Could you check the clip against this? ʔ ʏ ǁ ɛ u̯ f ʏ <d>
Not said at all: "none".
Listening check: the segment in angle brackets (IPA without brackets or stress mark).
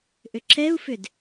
d